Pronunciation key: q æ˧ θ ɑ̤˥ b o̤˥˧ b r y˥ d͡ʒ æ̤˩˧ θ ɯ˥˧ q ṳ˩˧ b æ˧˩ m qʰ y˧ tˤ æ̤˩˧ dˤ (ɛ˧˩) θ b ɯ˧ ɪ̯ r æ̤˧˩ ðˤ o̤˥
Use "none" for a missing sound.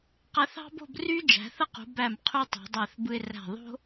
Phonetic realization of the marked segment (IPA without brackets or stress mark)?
æ˧˩